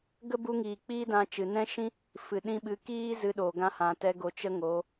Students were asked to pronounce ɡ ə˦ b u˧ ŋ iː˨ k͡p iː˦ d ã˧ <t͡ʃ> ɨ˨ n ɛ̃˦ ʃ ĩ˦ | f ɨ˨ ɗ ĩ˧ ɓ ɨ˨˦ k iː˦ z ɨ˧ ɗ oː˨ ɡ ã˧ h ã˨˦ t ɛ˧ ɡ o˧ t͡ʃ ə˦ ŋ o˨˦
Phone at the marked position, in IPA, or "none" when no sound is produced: t͡ʃ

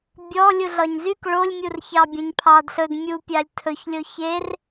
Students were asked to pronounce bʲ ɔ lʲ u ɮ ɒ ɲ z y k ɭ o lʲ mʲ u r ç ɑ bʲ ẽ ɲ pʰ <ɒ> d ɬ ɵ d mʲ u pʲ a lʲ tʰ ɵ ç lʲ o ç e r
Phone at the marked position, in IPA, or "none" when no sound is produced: ɑ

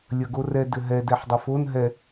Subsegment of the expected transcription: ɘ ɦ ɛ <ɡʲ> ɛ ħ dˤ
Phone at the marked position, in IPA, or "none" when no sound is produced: d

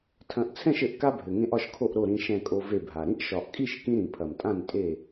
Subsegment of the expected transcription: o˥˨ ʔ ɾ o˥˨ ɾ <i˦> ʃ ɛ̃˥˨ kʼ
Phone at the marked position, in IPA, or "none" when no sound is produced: ĩ˦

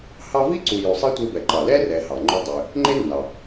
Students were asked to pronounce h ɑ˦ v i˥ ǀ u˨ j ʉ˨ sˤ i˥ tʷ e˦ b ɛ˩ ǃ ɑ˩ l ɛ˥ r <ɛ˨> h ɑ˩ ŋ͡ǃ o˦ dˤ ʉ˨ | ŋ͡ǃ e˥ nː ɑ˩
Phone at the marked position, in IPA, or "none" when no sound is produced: ɛ˨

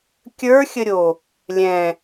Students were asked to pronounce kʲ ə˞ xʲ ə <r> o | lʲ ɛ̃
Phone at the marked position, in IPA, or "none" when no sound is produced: ɾʲ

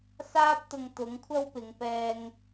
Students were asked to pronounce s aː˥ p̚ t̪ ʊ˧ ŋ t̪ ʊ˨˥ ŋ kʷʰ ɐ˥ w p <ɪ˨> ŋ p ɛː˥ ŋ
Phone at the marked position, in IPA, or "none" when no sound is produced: ɪ˧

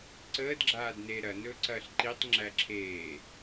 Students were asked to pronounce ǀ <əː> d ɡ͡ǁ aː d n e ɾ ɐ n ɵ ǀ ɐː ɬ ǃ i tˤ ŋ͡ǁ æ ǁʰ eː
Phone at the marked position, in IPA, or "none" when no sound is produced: əː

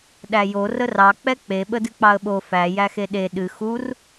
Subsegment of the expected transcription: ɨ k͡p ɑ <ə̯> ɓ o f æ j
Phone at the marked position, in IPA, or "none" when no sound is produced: ə̯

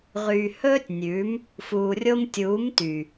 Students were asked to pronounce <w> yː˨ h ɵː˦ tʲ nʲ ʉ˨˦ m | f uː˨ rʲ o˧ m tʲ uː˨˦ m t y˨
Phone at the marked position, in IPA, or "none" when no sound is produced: ʁ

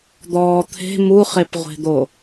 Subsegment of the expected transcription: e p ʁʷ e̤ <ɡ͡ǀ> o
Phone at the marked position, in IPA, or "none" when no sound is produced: d̪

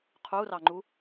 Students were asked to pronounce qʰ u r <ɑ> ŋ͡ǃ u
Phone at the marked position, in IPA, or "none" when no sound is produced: ɑ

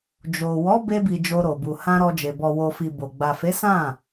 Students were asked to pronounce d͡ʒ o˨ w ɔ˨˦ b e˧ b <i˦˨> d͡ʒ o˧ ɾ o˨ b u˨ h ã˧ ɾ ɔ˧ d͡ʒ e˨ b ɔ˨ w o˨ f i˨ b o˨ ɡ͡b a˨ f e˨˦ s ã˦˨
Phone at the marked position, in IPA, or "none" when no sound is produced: i˨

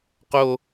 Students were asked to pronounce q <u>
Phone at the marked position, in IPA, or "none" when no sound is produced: o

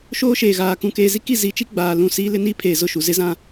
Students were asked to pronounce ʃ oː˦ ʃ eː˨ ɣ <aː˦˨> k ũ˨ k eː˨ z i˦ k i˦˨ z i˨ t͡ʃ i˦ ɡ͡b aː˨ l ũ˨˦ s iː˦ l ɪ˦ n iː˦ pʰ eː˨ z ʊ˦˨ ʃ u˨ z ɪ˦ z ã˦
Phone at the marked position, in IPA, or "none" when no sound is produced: aː˨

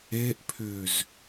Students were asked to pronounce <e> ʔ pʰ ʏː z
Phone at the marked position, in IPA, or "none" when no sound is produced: e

